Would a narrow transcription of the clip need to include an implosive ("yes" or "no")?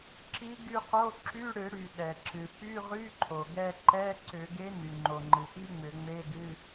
yes